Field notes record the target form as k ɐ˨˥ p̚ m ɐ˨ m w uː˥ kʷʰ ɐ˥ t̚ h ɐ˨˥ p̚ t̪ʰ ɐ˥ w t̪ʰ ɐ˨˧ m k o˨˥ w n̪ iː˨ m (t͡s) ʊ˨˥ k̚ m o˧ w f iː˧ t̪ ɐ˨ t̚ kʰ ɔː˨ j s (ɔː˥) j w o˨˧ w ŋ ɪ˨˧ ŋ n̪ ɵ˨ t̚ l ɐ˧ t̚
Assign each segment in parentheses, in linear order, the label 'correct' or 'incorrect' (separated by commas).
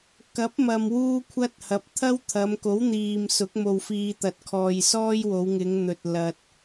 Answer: incorrect, correct